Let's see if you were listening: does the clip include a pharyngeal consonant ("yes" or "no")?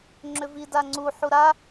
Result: yes